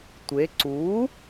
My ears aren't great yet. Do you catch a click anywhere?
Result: yes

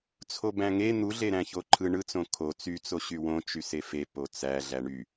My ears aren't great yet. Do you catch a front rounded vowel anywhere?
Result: yes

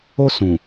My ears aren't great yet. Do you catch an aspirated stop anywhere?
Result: no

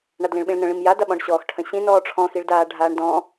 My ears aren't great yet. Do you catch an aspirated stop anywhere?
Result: yes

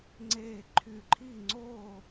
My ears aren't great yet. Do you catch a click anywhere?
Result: yes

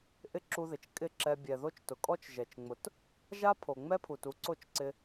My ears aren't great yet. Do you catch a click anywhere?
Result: yes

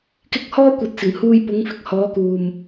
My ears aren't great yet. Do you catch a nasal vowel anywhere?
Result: no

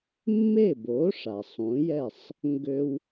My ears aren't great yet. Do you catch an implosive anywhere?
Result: no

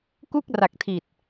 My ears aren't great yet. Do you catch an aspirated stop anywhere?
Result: yes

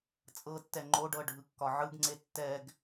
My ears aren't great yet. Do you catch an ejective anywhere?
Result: yes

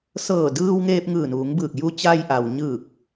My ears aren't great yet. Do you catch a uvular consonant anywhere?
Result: no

